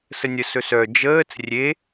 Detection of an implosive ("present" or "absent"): absent